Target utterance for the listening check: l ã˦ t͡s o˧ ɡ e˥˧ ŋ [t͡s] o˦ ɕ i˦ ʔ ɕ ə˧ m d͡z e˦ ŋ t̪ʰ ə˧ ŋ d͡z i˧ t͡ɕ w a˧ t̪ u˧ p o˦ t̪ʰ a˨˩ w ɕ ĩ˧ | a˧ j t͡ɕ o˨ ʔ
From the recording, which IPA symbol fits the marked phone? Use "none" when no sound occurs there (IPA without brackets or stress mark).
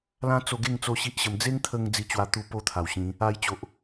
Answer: t͡s